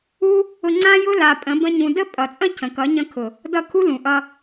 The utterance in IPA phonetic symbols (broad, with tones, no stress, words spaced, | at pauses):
u˦ | ʊ˧ŋ͡ǀã˦jʊ˦ la˧ pʼə̃˨˦ bə̃˦ɲũ˧ də˦pʼʌ˨t͡sʼə̃˦ cʰə̃˨kʌ˨˦ ɲə̃˧kʰʊ˨ | dʌ˦˨ kʰu˦lũ˨ʔʌ˧